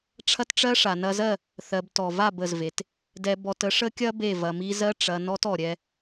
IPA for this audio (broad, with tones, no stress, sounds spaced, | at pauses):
ʈ͡ʂʰ ɐ˦ t ʈ͡ʂ ɜ˦ ʂ a˨ n ɐ˧ z ɜ˦˨ | θ ɜ˧ b t ɔ˨ v a˦˨ b ə˨ z v e˨ t | d ɛ˧ b ɔ˧ t ə˦ ʂ ə˦ kʲ ɐ˦ b e˦˨ v ɐ˧ m i˦ z ɜ˦ ʈ͡ʂ ɐ˧ n ɔ˦ t ɔ˨ ɾʲ ɛ˧